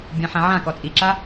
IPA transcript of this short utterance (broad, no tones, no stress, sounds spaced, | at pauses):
bʲ ã ħ ã ʕ ã k ɔ t͡sʼ i ǁ a